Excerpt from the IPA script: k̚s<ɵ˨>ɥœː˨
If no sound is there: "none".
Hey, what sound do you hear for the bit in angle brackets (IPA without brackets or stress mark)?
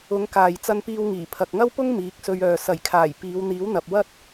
ɵ˧